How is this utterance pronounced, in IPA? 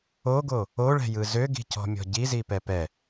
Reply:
oɡo | oɭɛ̤jɯ zøɡi̤cɔ̤mʲɔ̤ ɟizipɛ pɛ

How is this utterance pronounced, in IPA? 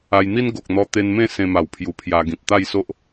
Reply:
a˧jn̪i˦n ɡo˨k̚n̪ɔ˧ t̪e˦n mẽ˥˧ sẽ˧ma˨˩wpʰju˨˩ pʰja˧ ɡĩ˨p̚ t̪a˥˧jso˦ʔ

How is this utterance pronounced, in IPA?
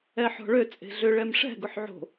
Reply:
ɛħɔ̤ɭø t͡sʼe̤ɮʏ ɭɛmʂɛ̤ ɡʊħʕo̤

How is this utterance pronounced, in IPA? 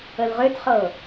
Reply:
əlʁøtχɤ

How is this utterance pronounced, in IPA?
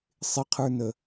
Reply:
sˤɪqʰə˞nə

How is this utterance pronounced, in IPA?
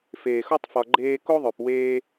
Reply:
feː˨xo˦tˤ fɒ˧ɡ͡ǃeː˦ ko˦ðˤø˨p weː˦

